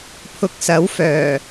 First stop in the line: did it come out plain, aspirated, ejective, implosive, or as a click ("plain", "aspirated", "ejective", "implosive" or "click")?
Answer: aspirated